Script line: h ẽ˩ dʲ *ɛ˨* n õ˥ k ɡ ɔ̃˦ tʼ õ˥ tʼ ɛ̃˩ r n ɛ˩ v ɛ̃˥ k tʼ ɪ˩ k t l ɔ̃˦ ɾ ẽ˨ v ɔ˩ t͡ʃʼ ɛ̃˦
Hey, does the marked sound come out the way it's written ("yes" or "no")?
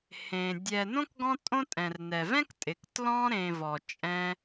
yes